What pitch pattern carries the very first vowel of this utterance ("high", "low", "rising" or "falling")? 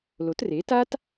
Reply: rising